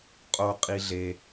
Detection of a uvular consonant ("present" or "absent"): present